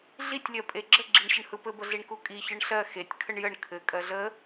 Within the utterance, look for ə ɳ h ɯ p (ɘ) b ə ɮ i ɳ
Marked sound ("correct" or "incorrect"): correct